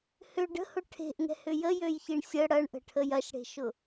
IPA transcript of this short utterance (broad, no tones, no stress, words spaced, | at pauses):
hʏ ɖə̤hʊ ʈʰe̤ʔŋɛ̤hʏ jəjøjçiɳ sʲə ɽɐɳʔə̤ʈʰəj ɐʃɽe̤ʃʊ